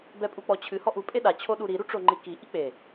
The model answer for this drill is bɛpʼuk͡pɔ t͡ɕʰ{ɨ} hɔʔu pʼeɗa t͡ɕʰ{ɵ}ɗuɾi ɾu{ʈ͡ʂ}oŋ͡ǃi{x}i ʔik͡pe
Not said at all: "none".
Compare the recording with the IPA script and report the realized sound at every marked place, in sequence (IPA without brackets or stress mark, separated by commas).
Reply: ɨ, o, ʈ͡ʂ, k